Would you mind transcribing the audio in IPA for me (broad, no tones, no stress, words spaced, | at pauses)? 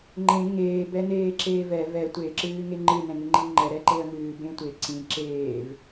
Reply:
ŋ͡ǃẽ ŋeːb ɛneːǁeːvɛ vɛ tʷeǁɨː ŋeŋ͡ǃɨ nɛ̃ŋɨŋ͡ǃiŋ͡ǃɛ ɾɛǃeə̯ŋɨː bẽtʷe ǀĩ ǁeːv